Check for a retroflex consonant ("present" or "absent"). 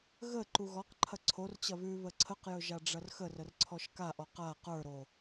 present